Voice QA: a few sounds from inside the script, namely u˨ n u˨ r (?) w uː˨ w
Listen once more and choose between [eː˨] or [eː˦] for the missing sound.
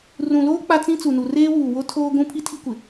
eː˦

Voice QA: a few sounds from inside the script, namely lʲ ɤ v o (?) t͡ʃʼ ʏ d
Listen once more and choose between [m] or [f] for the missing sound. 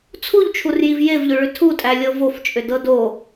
f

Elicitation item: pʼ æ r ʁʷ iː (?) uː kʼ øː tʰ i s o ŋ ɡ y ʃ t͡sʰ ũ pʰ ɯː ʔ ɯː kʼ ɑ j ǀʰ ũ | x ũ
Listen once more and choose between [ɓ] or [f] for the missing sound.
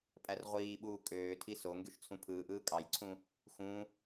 ɓ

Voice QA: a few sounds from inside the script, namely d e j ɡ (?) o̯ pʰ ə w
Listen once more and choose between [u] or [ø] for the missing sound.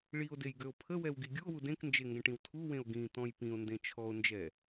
ø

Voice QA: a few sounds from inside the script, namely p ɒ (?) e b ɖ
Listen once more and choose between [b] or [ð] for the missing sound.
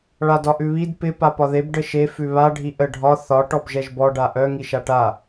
ð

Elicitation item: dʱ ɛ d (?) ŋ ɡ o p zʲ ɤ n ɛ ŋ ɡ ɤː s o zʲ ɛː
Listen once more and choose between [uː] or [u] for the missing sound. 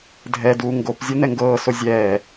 uː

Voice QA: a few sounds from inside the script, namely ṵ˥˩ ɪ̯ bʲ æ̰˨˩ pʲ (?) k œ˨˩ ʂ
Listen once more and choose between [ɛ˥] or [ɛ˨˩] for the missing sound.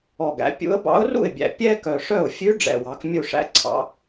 ɛ˥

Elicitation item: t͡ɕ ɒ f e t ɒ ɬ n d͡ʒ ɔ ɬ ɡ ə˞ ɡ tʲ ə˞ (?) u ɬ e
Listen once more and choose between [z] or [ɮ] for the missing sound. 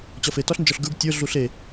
ɮ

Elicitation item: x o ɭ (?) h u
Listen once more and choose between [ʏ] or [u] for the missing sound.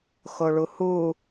u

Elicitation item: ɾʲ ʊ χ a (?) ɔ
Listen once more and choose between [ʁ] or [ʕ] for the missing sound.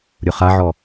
ʕ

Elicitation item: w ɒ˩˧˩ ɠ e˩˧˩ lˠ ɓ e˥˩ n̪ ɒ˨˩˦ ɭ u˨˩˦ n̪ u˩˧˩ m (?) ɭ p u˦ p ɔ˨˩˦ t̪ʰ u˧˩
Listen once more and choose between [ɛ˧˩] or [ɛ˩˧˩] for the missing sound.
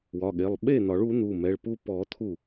ɛ˩˧˩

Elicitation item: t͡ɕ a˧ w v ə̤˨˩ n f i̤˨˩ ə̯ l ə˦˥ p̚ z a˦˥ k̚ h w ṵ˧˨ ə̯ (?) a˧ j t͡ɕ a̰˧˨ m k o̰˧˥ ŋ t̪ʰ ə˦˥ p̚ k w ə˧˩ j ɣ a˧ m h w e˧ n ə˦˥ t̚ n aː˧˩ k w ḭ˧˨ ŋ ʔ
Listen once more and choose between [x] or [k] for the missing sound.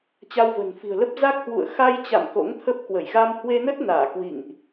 x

